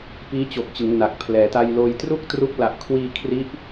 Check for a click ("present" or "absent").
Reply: absent